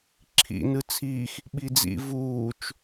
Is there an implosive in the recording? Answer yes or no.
yes